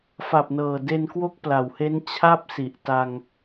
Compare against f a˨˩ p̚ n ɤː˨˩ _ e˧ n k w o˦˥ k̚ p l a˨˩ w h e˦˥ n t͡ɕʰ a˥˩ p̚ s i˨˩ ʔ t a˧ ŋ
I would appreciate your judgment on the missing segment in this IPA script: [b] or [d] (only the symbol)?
d